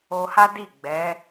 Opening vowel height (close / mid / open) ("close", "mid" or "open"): mid